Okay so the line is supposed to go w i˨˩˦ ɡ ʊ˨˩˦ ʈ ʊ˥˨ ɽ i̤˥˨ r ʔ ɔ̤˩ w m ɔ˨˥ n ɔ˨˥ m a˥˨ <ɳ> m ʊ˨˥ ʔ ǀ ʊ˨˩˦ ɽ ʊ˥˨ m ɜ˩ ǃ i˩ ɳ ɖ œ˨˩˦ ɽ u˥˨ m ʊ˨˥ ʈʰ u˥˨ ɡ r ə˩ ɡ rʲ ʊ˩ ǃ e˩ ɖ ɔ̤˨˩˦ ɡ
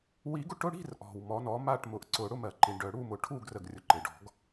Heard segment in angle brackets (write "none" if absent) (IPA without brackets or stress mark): ʈ